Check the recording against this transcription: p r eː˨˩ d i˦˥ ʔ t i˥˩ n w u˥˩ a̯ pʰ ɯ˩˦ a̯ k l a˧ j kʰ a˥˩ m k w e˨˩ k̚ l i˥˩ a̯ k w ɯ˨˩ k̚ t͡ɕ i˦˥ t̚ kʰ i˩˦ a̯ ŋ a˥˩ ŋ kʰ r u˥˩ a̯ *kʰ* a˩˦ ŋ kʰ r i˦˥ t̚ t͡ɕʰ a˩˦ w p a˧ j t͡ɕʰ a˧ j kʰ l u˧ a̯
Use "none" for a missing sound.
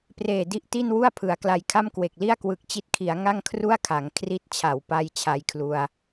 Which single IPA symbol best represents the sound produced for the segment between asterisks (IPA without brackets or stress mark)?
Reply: kʰ